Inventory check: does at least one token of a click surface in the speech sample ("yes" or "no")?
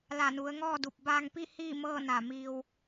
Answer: no